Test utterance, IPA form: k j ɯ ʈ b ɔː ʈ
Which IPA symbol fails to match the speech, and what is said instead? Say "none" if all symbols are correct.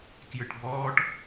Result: none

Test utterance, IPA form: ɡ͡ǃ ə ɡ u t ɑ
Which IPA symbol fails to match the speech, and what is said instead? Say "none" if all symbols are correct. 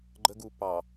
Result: t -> p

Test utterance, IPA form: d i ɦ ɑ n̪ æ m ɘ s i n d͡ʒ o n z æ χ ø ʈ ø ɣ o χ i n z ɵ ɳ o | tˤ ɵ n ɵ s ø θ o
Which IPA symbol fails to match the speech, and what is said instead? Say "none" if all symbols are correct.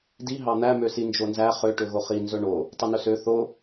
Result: ɘ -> ø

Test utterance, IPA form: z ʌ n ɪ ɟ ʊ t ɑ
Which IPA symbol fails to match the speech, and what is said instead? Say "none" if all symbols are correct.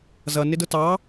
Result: ɟ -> d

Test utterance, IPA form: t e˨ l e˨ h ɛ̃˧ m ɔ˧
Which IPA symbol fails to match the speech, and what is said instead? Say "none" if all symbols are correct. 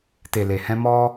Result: none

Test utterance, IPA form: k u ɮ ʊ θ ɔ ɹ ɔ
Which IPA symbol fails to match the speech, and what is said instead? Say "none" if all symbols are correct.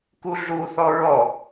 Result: ʊ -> u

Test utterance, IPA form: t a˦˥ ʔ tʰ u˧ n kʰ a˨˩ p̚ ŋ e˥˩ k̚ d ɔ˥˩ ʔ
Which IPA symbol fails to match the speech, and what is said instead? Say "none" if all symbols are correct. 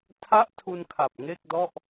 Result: t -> tʰ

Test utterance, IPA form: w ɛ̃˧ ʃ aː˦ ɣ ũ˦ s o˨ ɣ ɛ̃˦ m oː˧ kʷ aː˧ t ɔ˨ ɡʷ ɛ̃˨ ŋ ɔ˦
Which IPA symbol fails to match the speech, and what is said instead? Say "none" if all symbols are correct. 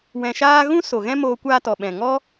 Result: ɡʷ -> ɓ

